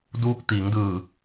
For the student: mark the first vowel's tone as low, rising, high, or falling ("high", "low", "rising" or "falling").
rising